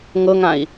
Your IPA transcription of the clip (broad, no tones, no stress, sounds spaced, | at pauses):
ŋ ɤ ŋ ã i̯